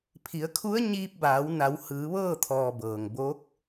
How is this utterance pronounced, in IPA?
pʰ i˩˧ ə̯ kʰ u˧˥ ə̯ ɲ iː˧ p̚ b aː˩˧ w n a˩˧ w h ɯː˩˧ ʋ ɤː˥˨ t̪ʰ ɔː˩ b ɤː˩ ŋ b o˧˥ k̚

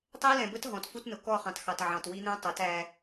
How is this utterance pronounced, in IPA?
tˤ ɛ˦ l ɛ̃˨ b ə˦ t ɦ ɔ̃˨ t f u˦ t n ʊ˨ k ɔ˦˨ χ ɑ̃˨ t x ɑ˨ t ʕ ɑ̃˨ t w i˦ n̪ ɛ̃˦ tˤ ʌ˨˦ t æ˦

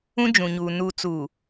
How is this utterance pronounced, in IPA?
ũ˦ d͡ʒ ũ˨ ɲ uː˨ n u˨ t͡s u˨

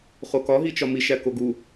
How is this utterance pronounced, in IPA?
χ o k ɒ ɦ i t͡ʃ ɒ m i ʃ æ k o ɡ u

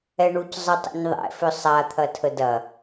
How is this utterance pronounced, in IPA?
ɛ ɳ u c zˤ ə tˤ ə̰ ɲ ðˤ ɛ̰ f ʏ sˤ a t̪ʰ ɐ tʰ ə d ɐ

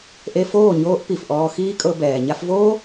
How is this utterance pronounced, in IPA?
ʔ e˧ f oː˦˨ ɲ oː˦ ʔ p i˨ f ʔ ɔː˧ x iː˦ kʼ ɤ˧ b ɛː˨ ɲ a˧ f v oː˦

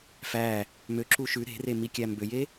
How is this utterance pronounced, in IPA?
f æ | m ø ǁ u ʃ ʉ ɾ e̤ r e m i kʲ æ m b ø j e

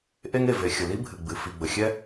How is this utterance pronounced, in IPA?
ʔ e˥ ŋ e˩ v e˩ xʲ ə˩ l i˥ bʱ ɨ˩ ɡ͡b ɨ˩ f i˩ ɡ͡b ə˩ xʲ ɛ˥

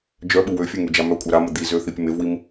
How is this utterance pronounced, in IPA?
d͡ʒ œ ɓ u w ø fʲ ø ŋ y d͡ʒ a m œ kʷʼ œ ɾ a m ə d̪ i z ø θ i pʲ ə m e v w i m

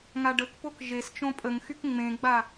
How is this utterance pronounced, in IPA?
ŋ a ɖ ə k p o k ʒ e s t͡ʃ õ pʼ ə ŋ x y k ŋ͡m ẽ ɡ͡b a

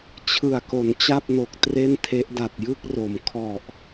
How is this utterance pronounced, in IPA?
t͡ɕʰ ɯ˨˩ a̯ k o˩˦ n t͡ɕ a˥˩ p̚ n o˨˩ k̚ t r e˥˩ n tʰ e˦˥ ʔ d a˨˩ t̚ j ɯ˥˩ k̚ r o˩˦ m kʰ ɔ˨˩ ʔ

